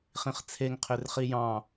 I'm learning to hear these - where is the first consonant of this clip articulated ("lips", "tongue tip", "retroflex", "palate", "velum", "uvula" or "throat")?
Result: uvula